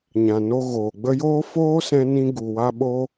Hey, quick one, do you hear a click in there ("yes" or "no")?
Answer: no